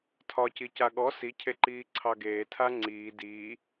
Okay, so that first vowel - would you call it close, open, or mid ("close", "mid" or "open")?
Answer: open